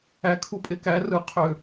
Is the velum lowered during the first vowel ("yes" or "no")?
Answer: no